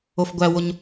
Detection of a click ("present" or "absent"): absent